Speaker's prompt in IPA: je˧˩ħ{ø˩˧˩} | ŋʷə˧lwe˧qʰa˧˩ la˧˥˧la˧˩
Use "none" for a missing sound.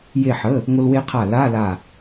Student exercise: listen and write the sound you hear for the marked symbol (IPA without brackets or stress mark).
ə˩˧˩